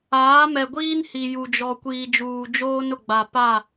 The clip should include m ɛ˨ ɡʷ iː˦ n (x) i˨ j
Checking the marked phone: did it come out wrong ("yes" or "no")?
yes